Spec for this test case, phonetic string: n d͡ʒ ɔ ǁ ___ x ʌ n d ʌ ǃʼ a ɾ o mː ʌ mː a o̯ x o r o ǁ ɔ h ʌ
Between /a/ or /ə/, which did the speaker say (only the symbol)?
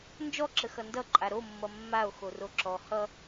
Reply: ə